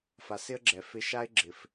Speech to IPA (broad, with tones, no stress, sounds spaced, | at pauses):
f a˨ s ɪ˦ ə̯ ɡ͡ǁ ɛ˨ f ɪ˧ ʃ a˦ ɪ̯ ɡ͡ǁ ɪ˨ f